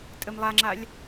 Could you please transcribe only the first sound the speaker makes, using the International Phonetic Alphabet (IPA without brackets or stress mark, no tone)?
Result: tʼ